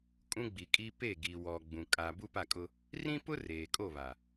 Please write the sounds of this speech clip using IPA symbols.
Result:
kʼ ũ˦ ɡ͡b i˨ kʼ i˦ p e˦˨ ɡ i˨ w ɔ˨ ɡ͡b ũ˨ kʼ a˨ b u˦ p a˦˨ kʼ ʊ˦ | r ĩ˦ p ʊ˦ r eː˨ kʼ o˦˨ β a˨

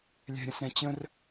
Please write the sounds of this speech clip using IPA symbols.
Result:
lʲ ɛ̤ ɾʲ ə̃ s ɾ ɛ̃ t͡ɕ ə̃ r

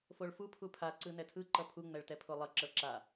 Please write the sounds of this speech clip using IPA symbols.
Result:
f o ɭ f u pʰ u pʰ a ǀ ɯ n ɛ tʰ ɯ ǃ ʌ pʰ u ŋ͡m ɛ ɭ t ɛ pʰ o lˠ ʌ ǁ ʌ ɭ ǁ a

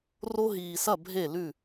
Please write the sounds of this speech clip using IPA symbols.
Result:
r o˦ ɦ iː˨ s ɐ˦˨ bʱ e˦˨ l ʉ˦˨

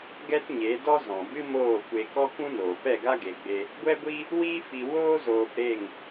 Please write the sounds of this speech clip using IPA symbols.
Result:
ɡ ɛ˦ t ɲ e˨˦ d ɔ˦ z ɔ̃˨ b ɨ˦ m oː˦˨ kʷ e˧ k ɔ˦ k ũ˦ n oː˨ p ɛ˦˨ ɡ a˦ ɡ e˧ ɡ͡b e˦ | ɡʷ ɛ˦ ɡʷ i˦ | w iː˦ f i˧ w oː˦ z oː˧ p ɾ e˦˨ ŋ

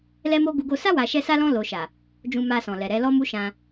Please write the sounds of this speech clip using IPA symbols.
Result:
l ɛ˦ m o˦ ɡ u˦ ɡ o˦ s a˦ w a˧ ʃ ɛ˦ s a˦ l ɔ̃˦ l o˧ ʃ a˨ | d͡ʒ ũ˧ m a˧ s ɔ̃˨ l ɛ˨ ɾ ɛ˨˦ l ɔ˦ m u˦ ʃ ã˧

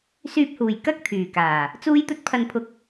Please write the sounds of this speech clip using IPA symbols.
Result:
s yː˨ p̚ h uː˨˩ j k ɐ˥ k̚ t̪ʰ yː˨˩ k aː˨˩ | t͡s uː˧ j t̪ ɵ˧ t̚ pʰ ɐ˨ n pʰ ʊ˨˥ k̚

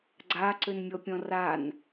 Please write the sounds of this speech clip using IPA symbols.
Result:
ɡ͡ǀ a ǀ ø n mʲ ɔ pʲ ɔ̃ r a n

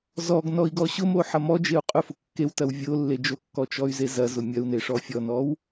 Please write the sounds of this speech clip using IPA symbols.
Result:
z ɔ ɡ n ɔ i̯ ɡ ɔ ɕ ʊ m o ħ ɐ m ɔ d͡ʒ e u̯ qʼ ʊ f ʊ kː e w t ɐ w vʲ o lː e d͡ʒ o kː ɔ t͡ʃ ɔ y̯ z e z ɐ z ʊ mʲ ɐ u̯ n e ʂ ɔ fʲ ɔ n ɔ w

